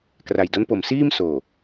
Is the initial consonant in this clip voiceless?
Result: yes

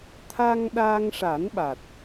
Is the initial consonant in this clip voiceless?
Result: yes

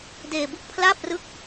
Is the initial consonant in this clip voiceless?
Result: no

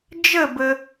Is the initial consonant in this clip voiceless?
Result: no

